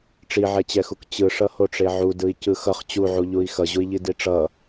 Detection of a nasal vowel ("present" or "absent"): absent